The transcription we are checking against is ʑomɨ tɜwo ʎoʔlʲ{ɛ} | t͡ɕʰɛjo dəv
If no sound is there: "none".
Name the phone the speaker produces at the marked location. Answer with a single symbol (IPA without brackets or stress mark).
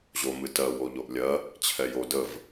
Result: ɜ